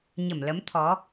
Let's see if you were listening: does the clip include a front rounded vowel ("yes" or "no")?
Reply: no